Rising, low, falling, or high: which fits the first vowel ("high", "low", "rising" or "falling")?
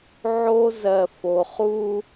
high